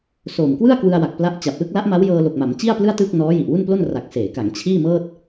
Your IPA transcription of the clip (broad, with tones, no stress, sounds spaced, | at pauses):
s o˨˩ m k w ɯ˥˩ a̯ k w ɯ˧ a̯ w a˨˩ k̚ p l a˦˥ ʔ t͡ɕ a˨˩ p̚ l ɯ˥˩ k̚ l a˦˥ ʔ m a˦˥ w j ɤː˧ l o˨˩ k̚ m a˩˦ m t͡ɕ i˥˩ a̯ p l ɯ˥˩ a̯ t ɯː˥˩ k̚ n ɔː˦˥ j i˨˩ ʔ w u˥˩ n p l o˥˩ n r a˨˩ k̚ s eː˩˦ k a˩˦ ŋ t͡ɕʰ iː˥˩ m ɤː˥˩ t̚